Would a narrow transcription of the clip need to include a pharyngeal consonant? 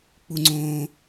no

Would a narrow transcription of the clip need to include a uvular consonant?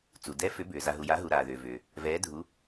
no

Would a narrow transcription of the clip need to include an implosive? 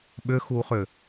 yes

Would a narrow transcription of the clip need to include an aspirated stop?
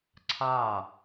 yes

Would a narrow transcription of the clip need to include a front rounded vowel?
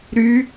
yes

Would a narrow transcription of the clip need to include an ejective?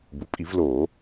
yes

